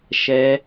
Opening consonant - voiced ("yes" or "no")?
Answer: no